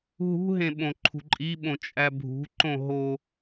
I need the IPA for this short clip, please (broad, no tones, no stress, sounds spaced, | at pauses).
ɦ ṳ ɦ ẽ ɓ õ ǃʰ ṳ ǃʼ i ɓ õ t͡ʃʼ æ bʱ ṳ ǃ õ ɦ o